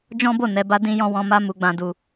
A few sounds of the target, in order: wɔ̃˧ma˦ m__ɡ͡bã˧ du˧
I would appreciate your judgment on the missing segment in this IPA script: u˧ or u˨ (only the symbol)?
u˧